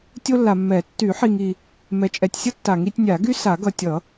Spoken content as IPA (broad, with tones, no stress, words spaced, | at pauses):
tʲo˥lːa˨ mːɛ˨˩˦ tːy˨˩˦ħi˨ŋ i˨ | mɛ˨t͡ʃʼɛ˨tʲsʲʌ˥ tːa˨˩˦ŋi˨˩˦tʲ nʲa˨˩˦ɡy˥ sa˨˩˦ɡʌ˨tʲʌ˨˩˦